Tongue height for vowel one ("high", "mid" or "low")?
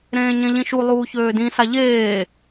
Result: mid